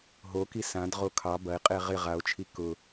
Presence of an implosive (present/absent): absent